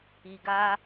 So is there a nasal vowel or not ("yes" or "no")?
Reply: no